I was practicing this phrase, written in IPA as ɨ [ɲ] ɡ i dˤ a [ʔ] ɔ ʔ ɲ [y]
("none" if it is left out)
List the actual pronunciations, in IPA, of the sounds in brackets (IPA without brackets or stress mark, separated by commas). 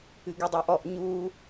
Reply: none, ʔ, u